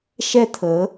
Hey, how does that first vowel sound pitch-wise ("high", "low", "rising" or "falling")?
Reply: high